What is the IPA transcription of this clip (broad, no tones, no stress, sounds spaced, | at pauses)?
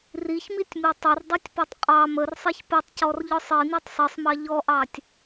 r i ç m i tʲ m i tˤ ə r dˤ i tʲ p ɔ tˤ qʼ ɑ m ə r sˤ i ç p ə tˤ c ɔ r ʎ ɔ sˤ i n i tˤ sˤ i sˤ m ɑ ʎ ɔ ʔ ɑ tʲ